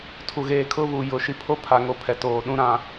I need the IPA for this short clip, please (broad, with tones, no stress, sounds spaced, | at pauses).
tʰ u˨ ɣ eː˨ kʰ ʊ˦ β u˨ j ʊ˨ ʃ i˨ pʰ o˦ pʰ a˨ ŋ o˦˨ pʰ ɛ˨ t oː˨ ɗ ũ˦ ɾ ã˨